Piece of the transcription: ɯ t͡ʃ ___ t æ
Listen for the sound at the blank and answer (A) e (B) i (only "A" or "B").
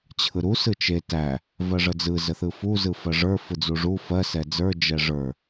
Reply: A